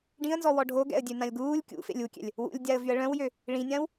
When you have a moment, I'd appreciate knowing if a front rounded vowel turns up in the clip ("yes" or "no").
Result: yes